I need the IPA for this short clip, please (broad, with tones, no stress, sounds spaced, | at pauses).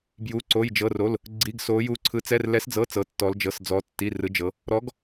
b j u˧˥˧ ǀ o˧˥˧ j d͡ʒ ɤ˧˥˧ r o˧˥˧ l | ɡ͡ǀ i˧˥˧ ɡ s o˧˥ j u˧˥ ǀʰ ɯ˧˥ t͡s ɛ˧˥˧ r l ɛ˧˥ s d͡z ɤ˧˥˧ t͡s ɤ˧˥ tː ɔ˧˥ l d͡ʒ ɤ˧˥˧ s d͡z ɔ˧˥ tː i˧˥˧ r ɯ˧˥ d͡ʒ ɤ˧˥ | ɾ ɔ˧˥ ɡ